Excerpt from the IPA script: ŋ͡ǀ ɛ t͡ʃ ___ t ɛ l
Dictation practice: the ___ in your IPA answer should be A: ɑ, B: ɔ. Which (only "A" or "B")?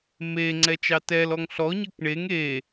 A